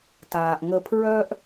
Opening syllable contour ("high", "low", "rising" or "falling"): low